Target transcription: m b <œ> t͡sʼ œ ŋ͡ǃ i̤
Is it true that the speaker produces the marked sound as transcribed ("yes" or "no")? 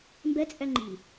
no